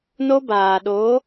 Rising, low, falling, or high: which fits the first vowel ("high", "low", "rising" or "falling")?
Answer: high